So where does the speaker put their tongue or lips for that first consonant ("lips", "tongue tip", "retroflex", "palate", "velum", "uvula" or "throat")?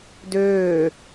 tongue tip